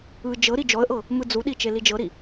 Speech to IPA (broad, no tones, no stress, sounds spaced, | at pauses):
ɯ d͡ʒ ɤ ɾ i d͡ʒ ɔ ə̯ ʔ ɤ | m ɯ d͡z u ɗ i t͡ʃ e l i d͡ʒ ɤ ɾ i